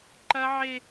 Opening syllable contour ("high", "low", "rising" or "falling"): high